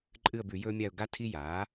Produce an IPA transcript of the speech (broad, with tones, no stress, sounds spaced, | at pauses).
ǃʼ ɨ˦˨ ə̯ b ʉ˧˩˧ j ɵː˦ mʲ a˦˨ ʊ̯ ɡ a˦ tʰ i˦ j aː˩˥